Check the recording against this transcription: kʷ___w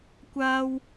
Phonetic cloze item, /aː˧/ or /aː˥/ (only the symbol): aː˧